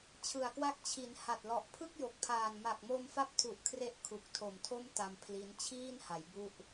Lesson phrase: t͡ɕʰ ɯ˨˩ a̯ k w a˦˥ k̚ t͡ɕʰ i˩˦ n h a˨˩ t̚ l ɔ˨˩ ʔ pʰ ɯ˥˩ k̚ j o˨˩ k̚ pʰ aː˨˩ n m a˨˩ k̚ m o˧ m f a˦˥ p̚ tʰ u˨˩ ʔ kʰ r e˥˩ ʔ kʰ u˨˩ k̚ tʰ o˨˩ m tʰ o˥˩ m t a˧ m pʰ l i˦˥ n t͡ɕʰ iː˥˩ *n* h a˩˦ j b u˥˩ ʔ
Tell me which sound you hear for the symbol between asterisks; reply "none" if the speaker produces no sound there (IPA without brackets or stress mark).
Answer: n